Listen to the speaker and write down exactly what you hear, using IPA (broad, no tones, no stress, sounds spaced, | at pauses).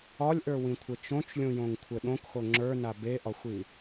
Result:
ɒ lʲ ʔ ə˞ w ĩ kʷʰ ɘ t͡ʃ õ t͡ʃ lʲ ũ j õ ŋ kʷʰ ɘ ɗ õ k x o ŋ͡ǁ ə˞ n a b e ʔ ɒ xʷ i